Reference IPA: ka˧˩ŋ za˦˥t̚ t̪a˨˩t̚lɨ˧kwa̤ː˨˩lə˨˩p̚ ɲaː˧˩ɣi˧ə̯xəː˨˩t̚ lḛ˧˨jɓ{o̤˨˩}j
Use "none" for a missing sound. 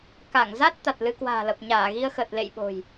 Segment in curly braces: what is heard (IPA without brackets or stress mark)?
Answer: o̤˨˩